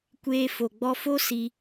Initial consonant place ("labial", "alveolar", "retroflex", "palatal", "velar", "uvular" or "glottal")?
velar